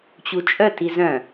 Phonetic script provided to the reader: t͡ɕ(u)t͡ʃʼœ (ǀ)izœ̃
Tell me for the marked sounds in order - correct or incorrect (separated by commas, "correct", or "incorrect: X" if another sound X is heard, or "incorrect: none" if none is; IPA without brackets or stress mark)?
correct, incorrect: t